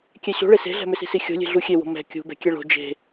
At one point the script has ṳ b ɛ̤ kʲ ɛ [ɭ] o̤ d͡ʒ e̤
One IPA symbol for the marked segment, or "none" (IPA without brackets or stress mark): ɭ